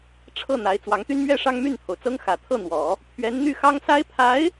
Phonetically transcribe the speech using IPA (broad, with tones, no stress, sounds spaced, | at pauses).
ʈ͡ʂʰ ɤ˥˩ n̪ a˧˥ ɪ̯ t͡s w ɑ˧˥ ŋ t̪ y˥ n m ɥ ɛ˥ ʂ ɑ˥ ŋ m y˥˩ n t̪ʰ o˩ ʊ̯ t͡s ɤ˥ ŋ x ä˨˩ t̪ʰ ɤ˥˩ n̪ w ɔ˨˩˦ | pʰ ɥ ɛ˧˥ n n̪ y˥˩ x ɑ˥ ŋ s a˥ ɪ̯ pʰ a˧˥ ɪ̯